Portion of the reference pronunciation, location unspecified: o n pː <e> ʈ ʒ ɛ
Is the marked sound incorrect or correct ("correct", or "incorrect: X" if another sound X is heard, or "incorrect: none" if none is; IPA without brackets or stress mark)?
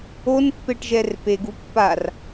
correct